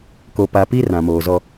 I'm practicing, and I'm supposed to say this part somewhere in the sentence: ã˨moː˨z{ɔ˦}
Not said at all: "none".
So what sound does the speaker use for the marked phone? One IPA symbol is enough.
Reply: ɔ˦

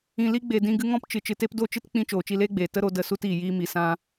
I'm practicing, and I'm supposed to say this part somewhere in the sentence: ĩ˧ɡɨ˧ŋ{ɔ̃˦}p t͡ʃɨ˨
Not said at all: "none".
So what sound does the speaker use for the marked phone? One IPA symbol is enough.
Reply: ɔ̃˦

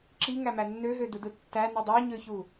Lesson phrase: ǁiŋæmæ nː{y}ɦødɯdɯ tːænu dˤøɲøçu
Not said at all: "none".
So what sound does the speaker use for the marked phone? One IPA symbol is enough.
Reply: ø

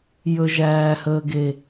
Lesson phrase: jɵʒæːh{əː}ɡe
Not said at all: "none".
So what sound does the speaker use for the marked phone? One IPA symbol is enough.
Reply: əː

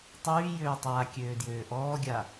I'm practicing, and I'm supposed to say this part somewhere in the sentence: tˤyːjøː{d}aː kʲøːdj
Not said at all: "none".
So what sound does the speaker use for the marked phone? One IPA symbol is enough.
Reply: tˤ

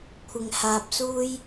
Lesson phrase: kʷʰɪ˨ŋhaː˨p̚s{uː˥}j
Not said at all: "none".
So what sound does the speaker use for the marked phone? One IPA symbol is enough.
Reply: uː˥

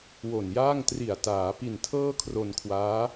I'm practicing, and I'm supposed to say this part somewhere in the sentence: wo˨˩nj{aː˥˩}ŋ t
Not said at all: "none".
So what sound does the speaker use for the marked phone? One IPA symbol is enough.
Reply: aː˥˩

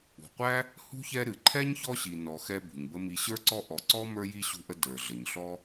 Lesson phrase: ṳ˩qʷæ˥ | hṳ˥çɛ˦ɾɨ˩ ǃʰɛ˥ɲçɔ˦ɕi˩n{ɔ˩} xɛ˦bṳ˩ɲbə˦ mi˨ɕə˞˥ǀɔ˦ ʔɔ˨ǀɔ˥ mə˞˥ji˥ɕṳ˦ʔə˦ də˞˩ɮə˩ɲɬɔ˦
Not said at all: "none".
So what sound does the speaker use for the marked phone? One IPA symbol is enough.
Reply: ɔ˩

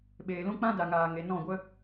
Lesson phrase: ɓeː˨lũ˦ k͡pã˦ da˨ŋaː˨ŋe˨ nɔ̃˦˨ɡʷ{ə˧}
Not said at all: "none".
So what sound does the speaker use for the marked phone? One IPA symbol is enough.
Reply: ə˦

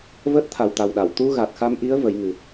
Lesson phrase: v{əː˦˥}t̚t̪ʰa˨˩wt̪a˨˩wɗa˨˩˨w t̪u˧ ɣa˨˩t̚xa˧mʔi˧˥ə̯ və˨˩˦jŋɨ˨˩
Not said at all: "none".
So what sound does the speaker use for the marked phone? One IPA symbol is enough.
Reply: əː˦˥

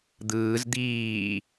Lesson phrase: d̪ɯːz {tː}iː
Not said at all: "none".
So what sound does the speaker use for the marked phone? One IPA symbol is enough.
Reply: d̪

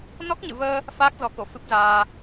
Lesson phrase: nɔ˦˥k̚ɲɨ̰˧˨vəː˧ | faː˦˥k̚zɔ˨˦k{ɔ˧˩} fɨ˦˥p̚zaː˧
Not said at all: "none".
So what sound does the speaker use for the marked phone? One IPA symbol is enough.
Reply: o˧˩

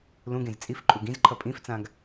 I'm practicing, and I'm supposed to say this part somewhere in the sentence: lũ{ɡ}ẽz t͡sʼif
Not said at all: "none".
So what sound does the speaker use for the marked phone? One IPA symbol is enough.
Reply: ɡ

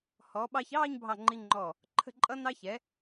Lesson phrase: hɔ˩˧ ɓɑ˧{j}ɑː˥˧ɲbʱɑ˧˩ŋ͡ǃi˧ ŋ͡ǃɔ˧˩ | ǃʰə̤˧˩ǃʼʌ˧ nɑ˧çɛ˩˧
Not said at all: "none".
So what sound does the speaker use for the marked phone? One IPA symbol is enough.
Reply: ç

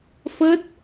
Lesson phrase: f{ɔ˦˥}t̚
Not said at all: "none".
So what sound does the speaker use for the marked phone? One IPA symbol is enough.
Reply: ə˦˥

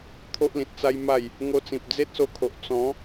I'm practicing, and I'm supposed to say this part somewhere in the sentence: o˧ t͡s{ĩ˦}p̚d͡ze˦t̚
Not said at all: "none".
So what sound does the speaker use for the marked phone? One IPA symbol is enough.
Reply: ĩ˨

